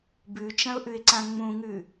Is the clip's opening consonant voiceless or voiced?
voiced